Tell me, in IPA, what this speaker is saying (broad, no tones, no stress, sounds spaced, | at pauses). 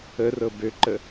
ə r ɤ b ø ǃ ə